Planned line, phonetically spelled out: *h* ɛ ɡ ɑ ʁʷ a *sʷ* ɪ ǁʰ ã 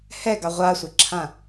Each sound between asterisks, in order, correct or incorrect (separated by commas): correct, correct